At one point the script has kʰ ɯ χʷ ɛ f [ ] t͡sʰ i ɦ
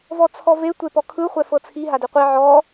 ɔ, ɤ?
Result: ɤ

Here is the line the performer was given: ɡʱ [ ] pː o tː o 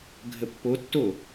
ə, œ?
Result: ə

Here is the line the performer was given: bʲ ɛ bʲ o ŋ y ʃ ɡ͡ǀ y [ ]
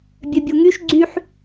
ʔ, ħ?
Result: ħ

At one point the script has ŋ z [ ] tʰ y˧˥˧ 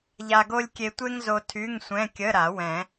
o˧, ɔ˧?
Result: o˧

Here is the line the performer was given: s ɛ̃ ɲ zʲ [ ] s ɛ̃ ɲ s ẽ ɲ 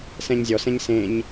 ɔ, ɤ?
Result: ɔ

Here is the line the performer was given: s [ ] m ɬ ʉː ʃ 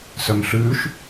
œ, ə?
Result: œ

